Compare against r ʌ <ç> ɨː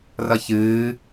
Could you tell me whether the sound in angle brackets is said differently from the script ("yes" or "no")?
no